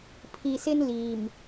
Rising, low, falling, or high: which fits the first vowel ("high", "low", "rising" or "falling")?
low